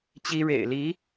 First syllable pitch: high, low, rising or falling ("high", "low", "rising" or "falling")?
high